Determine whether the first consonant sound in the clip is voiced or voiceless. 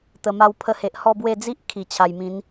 voiceless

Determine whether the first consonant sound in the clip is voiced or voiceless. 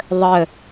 voiced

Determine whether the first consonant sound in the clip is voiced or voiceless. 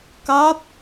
voiceless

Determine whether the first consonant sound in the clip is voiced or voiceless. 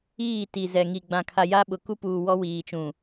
voiceless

